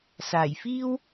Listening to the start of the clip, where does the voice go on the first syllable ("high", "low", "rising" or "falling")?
low